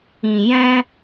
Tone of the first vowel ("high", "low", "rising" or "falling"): low